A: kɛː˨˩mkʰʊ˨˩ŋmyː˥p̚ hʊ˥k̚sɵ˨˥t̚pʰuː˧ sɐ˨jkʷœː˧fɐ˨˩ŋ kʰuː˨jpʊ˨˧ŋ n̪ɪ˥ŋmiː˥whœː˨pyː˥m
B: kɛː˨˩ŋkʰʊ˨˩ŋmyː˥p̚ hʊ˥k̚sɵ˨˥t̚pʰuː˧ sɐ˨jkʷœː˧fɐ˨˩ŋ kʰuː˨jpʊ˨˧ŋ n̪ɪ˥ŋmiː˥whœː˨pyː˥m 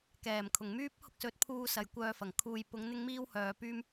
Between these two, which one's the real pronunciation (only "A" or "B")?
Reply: A